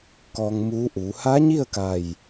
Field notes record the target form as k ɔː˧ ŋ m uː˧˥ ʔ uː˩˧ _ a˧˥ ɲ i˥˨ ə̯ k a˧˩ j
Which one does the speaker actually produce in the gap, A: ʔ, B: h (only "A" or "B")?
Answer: B